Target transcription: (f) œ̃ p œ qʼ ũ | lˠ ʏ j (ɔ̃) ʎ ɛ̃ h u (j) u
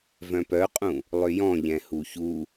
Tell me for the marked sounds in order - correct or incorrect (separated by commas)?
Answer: incorrect, correct, incorrect